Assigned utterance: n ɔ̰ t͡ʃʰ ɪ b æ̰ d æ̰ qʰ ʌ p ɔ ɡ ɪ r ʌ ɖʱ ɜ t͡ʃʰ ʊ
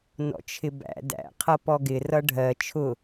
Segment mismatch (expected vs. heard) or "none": none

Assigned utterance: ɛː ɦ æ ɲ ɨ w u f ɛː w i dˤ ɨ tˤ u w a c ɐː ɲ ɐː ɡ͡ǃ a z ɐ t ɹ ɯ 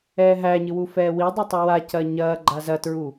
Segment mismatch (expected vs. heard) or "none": ɯ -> u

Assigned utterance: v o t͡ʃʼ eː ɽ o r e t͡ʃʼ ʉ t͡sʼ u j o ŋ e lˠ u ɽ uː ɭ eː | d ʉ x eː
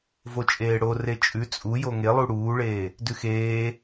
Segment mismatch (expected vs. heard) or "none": none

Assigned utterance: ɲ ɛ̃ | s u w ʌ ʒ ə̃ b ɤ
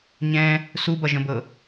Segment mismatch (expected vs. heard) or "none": w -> b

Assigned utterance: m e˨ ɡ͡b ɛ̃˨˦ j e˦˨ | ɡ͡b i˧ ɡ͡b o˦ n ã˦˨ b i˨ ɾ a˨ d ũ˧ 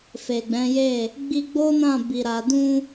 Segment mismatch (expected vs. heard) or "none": m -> f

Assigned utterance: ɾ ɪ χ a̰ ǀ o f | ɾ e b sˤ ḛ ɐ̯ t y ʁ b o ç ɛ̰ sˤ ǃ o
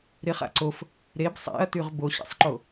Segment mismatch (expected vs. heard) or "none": ç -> ɕ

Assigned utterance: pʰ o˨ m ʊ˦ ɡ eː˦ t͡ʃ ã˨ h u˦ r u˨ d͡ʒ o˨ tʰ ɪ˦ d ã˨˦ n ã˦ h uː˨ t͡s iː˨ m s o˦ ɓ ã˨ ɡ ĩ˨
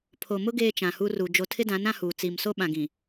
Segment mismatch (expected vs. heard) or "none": none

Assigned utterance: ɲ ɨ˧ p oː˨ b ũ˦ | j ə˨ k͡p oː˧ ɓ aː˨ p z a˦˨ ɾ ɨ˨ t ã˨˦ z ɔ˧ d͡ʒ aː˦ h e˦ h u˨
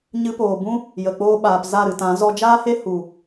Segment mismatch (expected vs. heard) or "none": none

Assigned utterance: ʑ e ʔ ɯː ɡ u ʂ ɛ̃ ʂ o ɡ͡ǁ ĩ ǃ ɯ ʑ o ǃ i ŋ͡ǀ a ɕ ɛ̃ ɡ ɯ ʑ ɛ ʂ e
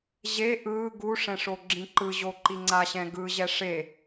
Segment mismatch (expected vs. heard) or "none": none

